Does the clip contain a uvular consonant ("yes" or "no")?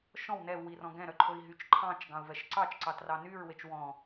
no